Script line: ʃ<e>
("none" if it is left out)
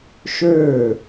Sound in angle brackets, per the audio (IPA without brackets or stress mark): ø